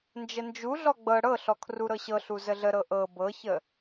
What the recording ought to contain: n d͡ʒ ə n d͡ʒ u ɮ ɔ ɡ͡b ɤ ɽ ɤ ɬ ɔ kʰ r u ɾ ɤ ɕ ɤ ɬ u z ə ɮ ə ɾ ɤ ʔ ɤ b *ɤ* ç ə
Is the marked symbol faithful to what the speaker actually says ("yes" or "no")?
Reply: yes